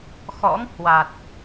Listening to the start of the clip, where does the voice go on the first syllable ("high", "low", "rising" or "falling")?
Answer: rising